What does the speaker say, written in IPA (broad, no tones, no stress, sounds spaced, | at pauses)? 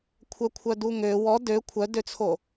kʷʰ œ kʷʰ œ d u ŋ ø w ɔ d ø kʷʰ œ d ø t͡sʰ o